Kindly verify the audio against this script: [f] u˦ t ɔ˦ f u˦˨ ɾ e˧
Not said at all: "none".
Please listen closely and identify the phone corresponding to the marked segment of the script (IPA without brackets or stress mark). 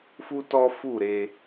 f